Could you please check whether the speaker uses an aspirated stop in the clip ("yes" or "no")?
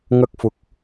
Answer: no